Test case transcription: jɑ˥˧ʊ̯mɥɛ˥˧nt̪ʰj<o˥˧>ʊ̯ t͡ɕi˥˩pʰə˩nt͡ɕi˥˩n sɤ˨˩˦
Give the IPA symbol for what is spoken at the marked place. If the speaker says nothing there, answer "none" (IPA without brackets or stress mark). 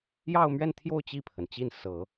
o˥˧